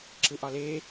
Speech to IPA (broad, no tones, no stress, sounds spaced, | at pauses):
ǁ ɯ ʔ ɒ l e